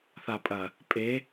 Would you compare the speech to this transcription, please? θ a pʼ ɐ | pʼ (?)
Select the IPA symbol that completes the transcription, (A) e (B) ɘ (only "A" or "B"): A